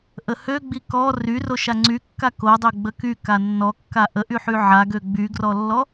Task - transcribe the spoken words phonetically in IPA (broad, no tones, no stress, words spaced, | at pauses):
ʔəhøɡ͡bi kɔ ryro ʃaŋ͡ǀykːa kodˤø ɡ͡bəky kanːɔkːa ʔəʔyħy ʕaɡø ɡ͡byɡrɔlːɔ